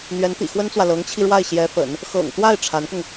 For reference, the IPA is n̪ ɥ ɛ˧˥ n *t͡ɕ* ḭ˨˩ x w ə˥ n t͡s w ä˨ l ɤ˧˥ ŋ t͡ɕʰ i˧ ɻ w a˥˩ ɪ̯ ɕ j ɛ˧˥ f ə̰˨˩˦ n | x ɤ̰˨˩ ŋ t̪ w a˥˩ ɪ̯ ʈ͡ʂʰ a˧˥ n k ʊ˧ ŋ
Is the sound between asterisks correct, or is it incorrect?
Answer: incorrect